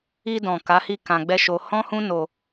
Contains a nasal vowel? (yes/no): yes